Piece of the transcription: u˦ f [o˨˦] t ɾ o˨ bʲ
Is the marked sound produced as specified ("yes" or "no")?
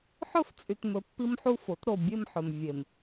yes